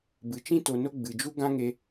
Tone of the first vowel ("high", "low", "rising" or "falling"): low